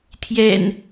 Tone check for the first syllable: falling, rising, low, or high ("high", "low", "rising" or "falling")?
low